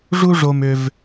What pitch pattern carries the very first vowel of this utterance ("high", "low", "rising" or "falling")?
high